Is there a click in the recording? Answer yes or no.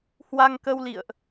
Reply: no